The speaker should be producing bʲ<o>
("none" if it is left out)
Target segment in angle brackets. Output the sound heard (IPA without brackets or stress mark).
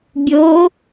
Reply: o